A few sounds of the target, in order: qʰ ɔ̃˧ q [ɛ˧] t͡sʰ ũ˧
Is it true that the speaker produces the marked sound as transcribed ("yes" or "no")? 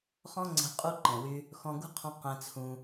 no